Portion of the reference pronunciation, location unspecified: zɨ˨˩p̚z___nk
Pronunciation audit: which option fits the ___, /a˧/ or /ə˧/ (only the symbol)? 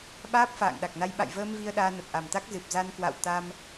a˧